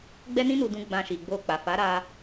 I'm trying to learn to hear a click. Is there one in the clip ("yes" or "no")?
no